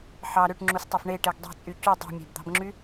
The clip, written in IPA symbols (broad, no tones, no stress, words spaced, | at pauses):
ħɑ ɾøʈŋ͡ǁustˤɑf ɳeʈeɡ dˤe̤t͡sʼy cu dˤṳmʲæ̤bd̪ɑ̤bŋ͡ǁy